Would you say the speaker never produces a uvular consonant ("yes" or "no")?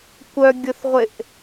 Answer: no